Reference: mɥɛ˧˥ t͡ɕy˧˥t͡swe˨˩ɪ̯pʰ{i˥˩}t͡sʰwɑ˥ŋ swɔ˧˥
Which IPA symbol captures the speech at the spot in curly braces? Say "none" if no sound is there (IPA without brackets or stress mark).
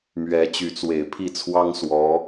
i˥˩